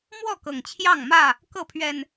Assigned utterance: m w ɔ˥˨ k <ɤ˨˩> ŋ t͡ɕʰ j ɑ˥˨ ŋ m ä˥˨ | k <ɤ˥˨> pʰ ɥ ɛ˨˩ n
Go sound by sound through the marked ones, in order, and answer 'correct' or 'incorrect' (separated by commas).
correct, correct